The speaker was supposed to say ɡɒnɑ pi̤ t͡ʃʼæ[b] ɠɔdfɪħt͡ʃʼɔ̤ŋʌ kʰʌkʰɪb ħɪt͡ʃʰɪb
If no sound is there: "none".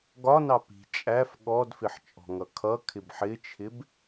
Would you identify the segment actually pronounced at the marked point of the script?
f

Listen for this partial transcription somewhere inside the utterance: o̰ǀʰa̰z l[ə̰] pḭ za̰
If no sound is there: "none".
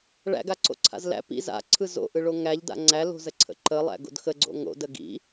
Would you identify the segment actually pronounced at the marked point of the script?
æ̰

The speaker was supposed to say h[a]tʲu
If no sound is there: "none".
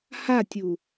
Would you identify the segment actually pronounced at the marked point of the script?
a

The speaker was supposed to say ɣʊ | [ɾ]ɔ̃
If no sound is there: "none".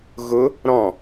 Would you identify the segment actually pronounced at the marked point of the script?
ɾ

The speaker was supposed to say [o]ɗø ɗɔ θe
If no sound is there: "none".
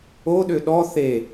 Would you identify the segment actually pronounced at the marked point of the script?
o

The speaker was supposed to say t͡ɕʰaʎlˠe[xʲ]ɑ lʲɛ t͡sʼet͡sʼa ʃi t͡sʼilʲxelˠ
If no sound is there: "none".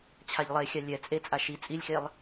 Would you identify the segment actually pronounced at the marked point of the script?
xʲ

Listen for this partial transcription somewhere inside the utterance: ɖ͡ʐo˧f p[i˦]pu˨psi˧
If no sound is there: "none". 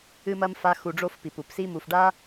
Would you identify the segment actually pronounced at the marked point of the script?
i˨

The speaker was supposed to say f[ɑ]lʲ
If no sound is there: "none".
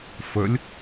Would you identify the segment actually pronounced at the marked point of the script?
ə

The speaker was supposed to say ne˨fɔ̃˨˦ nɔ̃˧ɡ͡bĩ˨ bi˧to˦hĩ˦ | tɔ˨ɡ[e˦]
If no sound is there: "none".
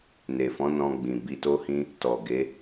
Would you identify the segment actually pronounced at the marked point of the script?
e˨˦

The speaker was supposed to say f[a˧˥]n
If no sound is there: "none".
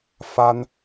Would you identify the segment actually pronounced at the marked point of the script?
a˥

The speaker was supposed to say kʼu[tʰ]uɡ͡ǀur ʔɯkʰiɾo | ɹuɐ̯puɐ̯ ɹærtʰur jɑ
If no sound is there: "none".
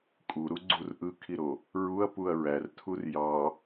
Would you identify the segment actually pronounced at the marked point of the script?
ɾ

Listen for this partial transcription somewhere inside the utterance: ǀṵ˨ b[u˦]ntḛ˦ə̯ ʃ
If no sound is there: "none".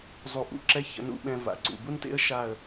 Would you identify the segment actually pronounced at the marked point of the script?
u˦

